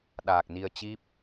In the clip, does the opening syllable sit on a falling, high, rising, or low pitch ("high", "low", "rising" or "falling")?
low